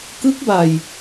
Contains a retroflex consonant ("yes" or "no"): no